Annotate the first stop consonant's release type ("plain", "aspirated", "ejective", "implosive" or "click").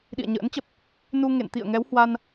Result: implosive